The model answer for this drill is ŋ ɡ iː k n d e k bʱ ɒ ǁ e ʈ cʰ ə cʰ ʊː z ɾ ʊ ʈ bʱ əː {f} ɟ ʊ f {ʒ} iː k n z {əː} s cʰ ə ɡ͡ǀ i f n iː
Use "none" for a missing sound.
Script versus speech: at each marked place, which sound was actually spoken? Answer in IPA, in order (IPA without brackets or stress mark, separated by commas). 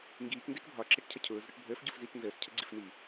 f, z, əː